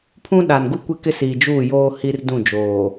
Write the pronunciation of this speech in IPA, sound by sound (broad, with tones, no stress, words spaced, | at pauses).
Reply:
pʰũ˦ɗa˨nɡu˦ kʷe˦kɪ˦ siː˨d͡ʒuː˦˨joː˦ hi˦r dũ˦˨d͡ʒoː˨